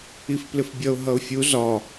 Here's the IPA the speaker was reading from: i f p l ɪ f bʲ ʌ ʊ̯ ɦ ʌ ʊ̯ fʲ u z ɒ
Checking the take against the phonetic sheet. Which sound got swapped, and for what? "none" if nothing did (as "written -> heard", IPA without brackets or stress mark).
none